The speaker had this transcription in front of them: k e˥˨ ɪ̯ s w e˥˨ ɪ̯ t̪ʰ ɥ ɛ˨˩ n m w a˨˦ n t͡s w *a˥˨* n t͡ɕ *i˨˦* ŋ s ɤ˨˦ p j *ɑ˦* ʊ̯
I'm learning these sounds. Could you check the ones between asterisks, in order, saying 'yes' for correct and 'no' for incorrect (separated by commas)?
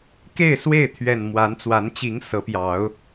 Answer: no, yes, no